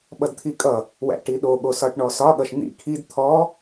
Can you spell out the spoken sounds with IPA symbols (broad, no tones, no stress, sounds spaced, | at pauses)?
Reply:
ɓ ʌ d t̪ʰ i kʼ ʌ | w æ̰ ʈ i ɗ o ɠ o s ɒ ʈ ɳ ɔ s ɒ ɠ ʌ ʃ n̪ ḭ kʰ i d t̪ʰ ɔ